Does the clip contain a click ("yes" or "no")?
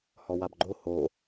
yes